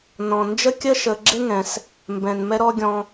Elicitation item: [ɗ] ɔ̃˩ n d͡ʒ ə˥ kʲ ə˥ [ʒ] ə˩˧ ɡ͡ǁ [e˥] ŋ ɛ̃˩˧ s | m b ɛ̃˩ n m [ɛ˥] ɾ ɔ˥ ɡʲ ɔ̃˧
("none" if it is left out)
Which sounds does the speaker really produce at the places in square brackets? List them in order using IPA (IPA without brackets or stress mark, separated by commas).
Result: n, ʃ, e˥, ɛ˥